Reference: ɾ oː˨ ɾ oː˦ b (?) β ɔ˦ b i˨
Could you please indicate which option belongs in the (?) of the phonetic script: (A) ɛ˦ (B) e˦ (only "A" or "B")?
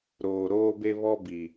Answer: B